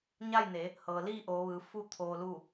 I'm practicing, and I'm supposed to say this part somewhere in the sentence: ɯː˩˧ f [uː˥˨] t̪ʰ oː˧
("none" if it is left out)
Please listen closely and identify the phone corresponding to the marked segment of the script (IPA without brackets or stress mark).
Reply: u˥˨